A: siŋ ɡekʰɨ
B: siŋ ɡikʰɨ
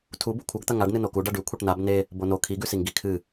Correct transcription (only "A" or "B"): B